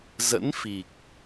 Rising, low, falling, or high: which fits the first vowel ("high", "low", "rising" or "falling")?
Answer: rising